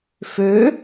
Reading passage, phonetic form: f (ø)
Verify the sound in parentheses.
correct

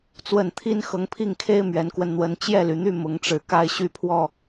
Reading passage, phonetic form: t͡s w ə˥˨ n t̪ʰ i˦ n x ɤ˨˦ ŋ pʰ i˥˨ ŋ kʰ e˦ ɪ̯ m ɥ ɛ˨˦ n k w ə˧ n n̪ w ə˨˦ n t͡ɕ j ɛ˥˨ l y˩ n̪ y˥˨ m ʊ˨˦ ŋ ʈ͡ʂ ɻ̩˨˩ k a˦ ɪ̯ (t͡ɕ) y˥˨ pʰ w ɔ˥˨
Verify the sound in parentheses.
incorrect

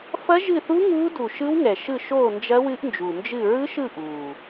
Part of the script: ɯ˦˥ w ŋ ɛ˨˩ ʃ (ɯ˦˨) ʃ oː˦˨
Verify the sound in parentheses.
correct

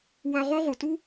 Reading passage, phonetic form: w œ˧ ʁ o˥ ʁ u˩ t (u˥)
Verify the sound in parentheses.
correct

